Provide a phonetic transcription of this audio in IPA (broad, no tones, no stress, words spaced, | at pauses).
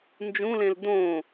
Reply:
nd͡ʒũlẽl dõ